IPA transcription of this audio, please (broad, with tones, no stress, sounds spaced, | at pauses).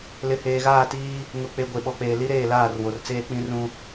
l ɪ˨ h eː˨ ɣ aː˦˨ t iː˦ | ŋ ʊ˨ k͡p e˨ ɡʷ e˨ ɓ ɔ˨ k͡p eː˨ l i˦ ɾ eː˦˨ l aː˦˨ r w o˨ r t͡s eː˦ k͡p ĩ˦ r ũ˦